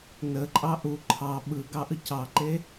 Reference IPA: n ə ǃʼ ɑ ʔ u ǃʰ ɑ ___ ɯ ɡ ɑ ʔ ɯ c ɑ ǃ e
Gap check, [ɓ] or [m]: ɓ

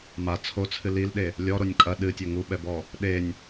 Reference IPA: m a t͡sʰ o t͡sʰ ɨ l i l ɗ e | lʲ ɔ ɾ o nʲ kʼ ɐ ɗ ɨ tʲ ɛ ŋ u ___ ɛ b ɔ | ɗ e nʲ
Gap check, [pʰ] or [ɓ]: ɓ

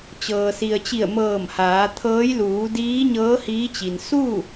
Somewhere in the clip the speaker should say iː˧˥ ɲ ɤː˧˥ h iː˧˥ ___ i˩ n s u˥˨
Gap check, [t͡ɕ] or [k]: t͡ɕ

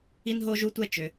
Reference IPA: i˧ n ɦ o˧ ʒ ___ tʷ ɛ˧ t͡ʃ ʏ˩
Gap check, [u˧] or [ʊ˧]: u˧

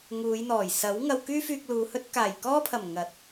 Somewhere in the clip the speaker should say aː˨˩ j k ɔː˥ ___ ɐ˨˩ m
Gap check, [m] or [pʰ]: pʰ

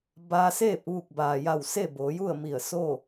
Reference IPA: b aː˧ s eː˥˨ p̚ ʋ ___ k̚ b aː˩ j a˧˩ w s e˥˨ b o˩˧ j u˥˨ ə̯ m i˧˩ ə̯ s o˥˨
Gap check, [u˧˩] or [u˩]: u˧˩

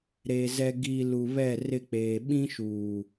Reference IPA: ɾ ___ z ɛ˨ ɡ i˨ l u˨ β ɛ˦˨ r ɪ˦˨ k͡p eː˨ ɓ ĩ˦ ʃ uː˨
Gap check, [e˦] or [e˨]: e˨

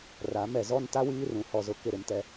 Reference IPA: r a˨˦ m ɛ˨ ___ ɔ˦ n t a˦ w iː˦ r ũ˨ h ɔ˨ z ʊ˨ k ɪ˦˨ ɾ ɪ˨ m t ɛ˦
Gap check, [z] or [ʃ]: z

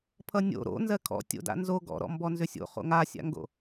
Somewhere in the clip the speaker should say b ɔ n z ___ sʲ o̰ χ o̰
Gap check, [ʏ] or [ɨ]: ʏ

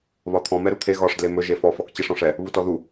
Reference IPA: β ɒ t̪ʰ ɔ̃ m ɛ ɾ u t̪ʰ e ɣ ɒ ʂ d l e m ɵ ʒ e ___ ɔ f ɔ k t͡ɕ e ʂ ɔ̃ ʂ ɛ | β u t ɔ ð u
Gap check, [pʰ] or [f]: f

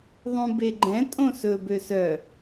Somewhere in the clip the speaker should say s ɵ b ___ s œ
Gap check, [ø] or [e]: ø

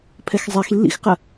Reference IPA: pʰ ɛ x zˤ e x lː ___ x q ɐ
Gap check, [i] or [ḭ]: ḭ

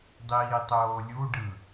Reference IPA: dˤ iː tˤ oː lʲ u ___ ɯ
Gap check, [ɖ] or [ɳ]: ɖ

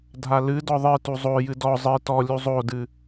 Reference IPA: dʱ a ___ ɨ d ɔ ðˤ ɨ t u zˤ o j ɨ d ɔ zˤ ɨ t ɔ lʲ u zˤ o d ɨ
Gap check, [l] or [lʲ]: l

